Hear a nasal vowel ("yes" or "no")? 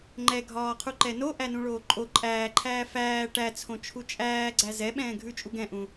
yes